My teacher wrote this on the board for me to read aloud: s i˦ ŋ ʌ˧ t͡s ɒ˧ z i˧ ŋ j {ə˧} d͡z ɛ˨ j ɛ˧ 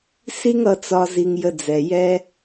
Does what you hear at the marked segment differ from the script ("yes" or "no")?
no